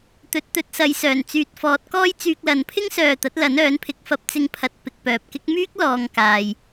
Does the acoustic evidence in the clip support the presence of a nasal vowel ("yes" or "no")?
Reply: no